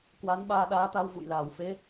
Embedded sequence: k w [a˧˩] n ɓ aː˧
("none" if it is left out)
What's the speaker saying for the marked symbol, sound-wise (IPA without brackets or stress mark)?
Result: a˨˦